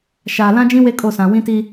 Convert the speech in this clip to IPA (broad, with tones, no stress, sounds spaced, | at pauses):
ʃ aː˨ l ã˦ d͡ʒ ĩ˦ w e˦ kʼ o˦˨ s ã˨ w ĩ˦ t i˦